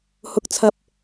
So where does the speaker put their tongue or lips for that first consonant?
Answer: throat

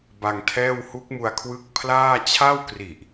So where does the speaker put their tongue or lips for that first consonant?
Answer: lips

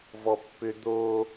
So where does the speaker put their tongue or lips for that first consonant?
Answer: lips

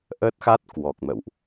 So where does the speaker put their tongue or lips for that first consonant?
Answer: throat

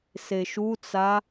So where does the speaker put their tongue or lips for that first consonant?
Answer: tongue tip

